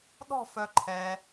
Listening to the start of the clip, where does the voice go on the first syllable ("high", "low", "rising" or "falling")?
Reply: falling